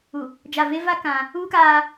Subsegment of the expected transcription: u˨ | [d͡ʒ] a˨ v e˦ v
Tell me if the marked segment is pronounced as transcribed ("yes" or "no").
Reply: yes